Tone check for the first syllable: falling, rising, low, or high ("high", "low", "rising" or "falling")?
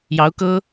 rising